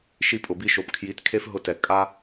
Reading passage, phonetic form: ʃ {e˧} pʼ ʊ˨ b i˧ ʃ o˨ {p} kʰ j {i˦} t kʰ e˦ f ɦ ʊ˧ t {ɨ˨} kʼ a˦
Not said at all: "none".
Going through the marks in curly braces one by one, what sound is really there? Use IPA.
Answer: i˧, p, i˨˦, ɛ˨

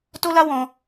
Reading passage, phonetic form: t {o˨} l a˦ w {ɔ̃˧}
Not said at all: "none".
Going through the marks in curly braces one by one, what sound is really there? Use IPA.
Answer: o˦, ɔ̃˧

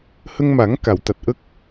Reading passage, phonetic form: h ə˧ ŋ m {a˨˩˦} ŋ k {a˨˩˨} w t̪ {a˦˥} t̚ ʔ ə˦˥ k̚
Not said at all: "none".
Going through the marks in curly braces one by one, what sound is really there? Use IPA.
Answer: a˨˩˦, a˨˩˨, a˨˩

